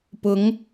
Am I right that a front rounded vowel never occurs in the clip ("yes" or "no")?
yes